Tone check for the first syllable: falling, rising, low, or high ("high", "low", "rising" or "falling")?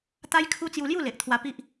high